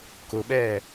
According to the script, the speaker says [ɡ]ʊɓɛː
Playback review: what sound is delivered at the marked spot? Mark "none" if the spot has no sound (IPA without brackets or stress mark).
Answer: k